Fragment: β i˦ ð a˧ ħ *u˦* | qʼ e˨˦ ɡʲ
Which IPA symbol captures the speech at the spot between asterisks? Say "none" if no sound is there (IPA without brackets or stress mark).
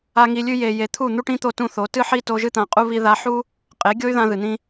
u˦